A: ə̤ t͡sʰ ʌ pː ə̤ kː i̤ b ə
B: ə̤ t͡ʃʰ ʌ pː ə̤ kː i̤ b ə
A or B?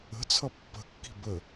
A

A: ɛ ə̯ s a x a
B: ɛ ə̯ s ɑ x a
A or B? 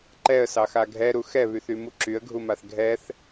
B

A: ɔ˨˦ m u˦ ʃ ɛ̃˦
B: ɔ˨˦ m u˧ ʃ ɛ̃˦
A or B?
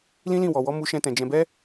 A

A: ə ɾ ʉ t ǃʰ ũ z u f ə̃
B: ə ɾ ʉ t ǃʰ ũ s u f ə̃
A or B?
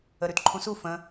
B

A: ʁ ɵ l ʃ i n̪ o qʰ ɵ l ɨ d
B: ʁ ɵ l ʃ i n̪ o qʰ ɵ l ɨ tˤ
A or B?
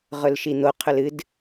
A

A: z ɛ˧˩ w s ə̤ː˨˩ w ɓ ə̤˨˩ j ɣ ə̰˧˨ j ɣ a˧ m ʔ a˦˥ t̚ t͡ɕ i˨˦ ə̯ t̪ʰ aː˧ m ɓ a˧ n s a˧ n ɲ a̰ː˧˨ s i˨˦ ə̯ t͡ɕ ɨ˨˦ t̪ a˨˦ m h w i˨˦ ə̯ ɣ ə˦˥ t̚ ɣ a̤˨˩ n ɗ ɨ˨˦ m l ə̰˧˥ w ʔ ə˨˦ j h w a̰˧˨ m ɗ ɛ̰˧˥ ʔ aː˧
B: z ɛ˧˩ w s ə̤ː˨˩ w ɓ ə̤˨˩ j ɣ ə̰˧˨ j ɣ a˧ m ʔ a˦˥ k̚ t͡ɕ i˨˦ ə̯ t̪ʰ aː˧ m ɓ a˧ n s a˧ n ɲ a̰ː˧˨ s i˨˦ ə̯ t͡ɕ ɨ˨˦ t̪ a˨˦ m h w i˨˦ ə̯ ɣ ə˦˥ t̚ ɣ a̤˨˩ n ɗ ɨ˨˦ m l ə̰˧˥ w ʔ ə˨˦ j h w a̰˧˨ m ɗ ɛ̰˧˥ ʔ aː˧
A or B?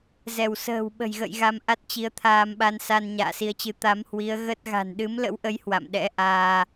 A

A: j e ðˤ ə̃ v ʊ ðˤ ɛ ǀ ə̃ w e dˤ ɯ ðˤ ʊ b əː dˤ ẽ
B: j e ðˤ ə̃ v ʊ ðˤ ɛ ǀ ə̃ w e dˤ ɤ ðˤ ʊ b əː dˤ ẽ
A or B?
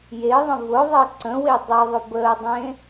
B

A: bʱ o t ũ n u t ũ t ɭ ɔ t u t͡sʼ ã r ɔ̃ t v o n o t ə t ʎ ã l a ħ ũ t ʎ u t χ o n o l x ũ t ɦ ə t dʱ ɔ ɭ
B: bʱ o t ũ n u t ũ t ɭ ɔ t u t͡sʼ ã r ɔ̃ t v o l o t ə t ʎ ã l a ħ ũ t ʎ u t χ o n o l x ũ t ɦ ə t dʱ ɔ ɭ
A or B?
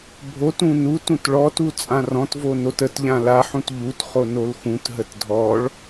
A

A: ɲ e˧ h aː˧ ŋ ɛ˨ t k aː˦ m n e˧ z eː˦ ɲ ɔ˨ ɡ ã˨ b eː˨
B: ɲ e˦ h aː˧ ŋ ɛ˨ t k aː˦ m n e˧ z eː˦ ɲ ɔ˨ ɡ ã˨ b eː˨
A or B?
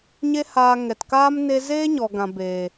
B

